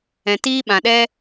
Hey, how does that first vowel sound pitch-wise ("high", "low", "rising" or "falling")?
low